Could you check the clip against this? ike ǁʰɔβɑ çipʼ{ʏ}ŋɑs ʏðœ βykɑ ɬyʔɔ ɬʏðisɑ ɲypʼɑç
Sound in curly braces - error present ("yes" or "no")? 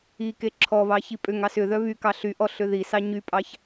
no